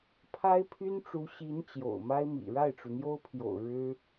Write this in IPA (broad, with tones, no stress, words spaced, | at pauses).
pʰa˥ɪ̯pʰy˥nʈ͡ʂu˧˥ ɕi˧˥n t͡ɕjo̰˨˩ʊ̯ma˥ɪ̯mḭ˨˩ ɻa˥˩ɪ̯ʈ͡ʂu˩n̪jo˥ʊ̯pʰjo̰˨˩ʊ̯ ɻɻ̩˥